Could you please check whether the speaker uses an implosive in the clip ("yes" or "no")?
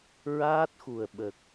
yes